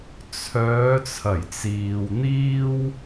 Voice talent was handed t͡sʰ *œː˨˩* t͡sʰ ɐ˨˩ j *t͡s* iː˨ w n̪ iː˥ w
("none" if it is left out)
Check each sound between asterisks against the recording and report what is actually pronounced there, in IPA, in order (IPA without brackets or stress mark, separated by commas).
œː˨˧, t͡s